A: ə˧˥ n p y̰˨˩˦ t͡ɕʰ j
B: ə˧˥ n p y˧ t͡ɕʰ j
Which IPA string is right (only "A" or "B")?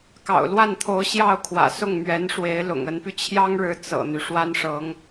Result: B